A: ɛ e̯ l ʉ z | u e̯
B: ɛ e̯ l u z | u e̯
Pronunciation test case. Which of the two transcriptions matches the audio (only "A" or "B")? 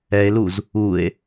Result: B